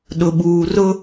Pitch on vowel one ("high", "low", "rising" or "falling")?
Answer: low